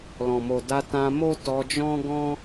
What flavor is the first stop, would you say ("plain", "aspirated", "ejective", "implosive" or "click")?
plain